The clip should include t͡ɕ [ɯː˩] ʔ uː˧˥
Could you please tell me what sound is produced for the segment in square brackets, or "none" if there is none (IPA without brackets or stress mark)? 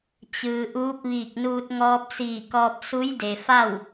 ɯː˩